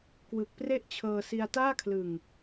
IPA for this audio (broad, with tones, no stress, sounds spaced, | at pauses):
k w ɯ˨˩ k̚ p r e˥˩ ʔ t͡ɕʰ ɤː˧ s i˧ a̯ t aː˥˩ kʰ l ɯ˨˩ ŋ